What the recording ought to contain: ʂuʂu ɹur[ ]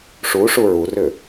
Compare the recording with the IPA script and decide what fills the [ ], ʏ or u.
ʏ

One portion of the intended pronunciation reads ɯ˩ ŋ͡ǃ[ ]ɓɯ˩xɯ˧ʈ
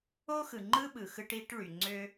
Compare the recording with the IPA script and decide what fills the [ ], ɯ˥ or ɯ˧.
ɯ˥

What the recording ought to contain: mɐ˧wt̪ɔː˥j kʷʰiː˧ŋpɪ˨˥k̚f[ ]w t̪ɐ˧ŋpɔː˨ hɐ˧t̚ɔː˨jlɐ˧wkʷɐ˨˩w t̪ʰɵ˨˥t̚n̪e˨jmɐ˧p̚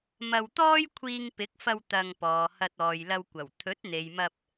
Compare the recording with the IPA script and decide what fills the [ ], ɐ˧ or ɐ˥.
ɐ˧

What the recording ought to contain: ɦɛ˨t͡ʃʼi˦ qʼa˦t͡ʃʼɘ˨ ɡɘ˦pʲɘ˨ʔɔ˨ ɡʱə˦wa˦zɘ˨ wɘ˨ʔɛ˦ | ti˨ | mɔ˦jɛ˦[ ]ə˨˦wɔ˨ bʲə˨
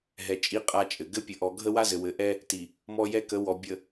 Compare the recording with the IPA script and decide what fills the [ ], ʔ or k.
k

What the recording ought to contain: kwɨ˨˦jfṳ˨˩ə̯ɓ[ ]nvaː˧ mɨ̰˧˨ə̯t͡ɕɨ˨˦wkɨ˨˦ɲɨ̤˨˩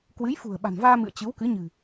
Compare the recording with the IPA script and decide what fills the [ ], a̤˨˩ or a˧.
a̤˨˩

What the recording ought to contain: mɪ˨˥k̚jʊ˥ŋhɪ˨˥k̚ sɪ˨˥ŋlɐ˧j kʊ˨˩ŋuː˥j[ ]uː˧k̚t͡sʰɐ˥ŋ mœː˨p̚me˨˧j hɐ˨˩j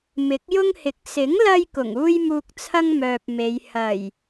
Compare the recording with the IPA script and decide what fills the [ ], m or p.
m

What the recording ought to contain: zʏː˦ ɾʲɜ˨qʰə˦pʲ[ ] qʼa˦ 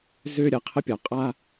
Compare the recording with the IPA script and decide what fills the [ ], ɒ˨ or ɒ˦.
ɒ˨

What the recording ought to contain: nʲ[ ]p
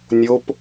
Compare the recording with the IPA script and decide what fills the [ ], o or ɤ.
o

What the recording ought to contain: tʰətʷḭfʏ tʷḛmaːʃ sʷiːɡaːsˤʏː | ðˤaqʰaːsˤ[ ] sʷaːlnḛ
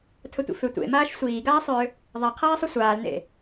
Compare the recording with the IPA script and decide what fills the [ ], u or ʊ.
u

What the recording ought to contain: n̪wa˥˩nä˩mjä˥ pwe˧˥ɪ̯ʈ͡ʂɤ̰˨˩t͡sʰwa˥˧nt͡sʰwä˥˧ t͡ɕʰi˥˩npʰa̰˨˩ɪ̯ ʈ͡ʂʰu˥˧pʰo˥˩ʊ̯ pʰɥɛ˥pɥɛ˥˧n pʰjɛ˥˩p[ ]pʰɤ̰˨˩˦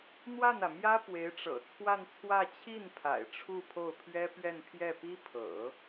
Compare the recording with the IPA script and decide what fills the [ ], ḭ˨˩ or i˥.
i˥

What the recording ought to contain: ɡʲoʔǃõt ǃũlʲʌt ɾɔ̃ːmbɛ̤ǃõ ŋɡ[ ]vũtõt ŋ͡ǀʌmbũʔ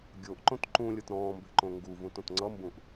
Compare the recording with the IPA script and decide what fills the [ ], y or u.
u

